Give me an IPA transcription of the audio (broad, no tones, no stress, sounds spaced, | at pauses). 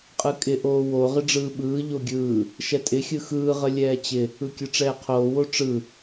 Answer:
qʼ ɯ kʼ ɪ ʔ oː w o ʁ ɪ ɖ͡ʐ ɯː ɓ ɯː ʎ o ɡʲ ɯː | ʃ ɛ tʼ ɪ xʲ ɯ x ɯː ʁ ə lʲ ɛː t͡ɕ ɪ | ɯ kʲ ɯ ʈ͡ʂ ɛː qʰ oː w o ʈ͡ʂ ɯ